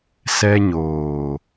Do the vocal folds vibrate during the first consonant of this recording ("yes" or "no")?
no